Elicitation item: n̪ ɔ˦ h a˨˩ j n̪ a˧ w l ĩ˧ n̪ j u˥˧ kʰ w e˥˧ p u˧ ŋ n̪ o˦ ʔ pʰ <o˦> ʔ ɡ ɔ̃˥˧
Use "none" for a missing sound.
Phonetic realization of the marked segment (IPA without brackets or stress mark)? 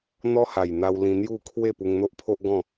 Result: o˦